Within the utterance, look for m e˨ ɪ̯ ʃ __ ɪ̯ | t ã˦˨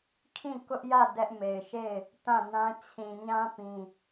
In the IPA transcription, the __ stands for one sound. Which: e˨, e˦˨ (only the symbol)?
e˦˨